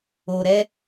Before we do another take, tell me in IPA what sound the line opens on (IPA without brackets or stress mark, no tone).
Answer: o